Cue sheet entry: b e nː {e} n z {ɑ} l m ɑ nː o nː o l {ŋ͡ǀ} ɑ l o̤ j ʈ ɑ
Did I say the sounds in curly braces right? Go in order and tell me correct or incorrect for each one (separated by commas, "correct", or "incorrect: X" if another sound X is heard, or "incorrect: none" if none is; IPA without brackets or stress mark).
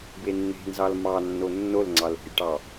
incorrect: e̤, correct, correct